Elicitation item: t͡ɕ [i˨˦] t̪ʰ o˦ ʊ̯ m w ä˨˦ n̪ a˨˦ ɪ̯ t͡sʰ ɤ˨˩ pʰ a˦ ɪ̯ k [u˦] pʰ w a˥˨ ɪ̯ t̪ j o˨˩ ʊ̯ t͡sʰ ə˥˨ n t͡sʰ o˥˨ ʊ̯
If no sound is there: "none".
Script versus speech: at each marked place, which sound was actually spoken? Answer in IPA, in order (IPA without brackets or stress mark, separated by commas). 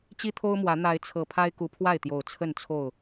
i˦, u˨˦